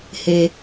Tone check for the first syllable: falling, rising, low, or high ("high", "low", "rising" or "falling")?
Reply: low